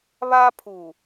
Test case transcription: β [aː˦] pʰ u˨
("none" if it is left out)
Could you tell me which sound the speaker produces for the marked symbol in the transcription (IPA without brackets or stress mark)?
aː˦